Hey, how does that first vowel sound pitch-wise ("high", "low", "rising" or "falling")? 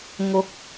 rising